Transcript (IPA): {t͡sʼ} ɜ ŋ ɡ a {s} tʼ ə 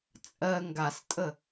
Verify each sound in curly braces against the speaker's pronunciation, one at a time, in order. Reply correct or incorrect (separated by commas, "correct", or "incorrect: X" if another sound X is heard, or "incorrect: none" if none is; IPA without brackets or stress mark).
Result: correct, correct